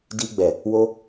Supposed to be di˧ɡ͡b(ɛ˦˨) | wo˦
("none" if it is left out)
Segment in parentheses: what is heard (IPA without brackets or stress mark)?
ɛ˨